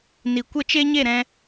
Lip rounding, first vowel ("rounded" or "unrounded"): unrounded